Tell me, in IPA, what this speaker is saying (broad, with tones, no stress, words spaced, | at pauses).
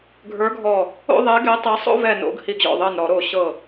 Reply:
ɡʱə˞˨˥ɡʱɔ˧˩ | o̰˥˨ðˤɛ˨˥ ɡɛ˨˥tˤɛ˨˥ sˤo̰˥˨vɛ˧˩no̰˧˩˧ɡ hi˧˩ɡʑɔ̰˧˩ðˤɤ˧˩nɾɔ˧˩˧ ɾo˧˩ɕɤ˧˩